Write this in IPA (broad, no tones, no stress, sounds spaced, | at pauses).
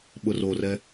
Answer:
ɓ ʊ r o r ɛ